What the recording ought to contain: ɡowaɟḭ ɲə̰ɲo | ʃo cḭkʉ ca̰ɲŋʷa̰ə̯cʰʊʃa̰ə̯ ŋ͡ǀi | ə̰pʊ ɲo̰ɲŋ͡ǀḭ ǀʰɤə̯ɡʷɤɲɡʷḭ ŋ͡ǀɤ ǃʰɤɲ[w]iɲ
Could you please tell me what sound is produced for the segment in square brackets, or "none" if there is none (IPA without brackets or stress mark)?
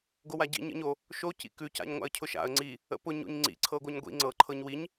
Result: w